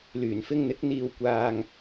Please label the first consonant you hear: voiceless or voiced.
voiced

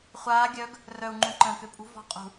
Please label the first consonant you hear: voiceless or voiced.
voiceless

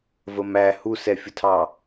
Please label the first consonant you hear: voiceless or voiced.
voiced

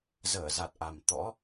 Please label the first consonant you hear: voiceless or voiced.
voiced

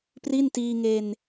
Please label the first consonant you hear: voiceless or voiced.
voiceless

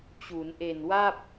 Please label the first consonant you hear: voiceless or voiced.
voiceless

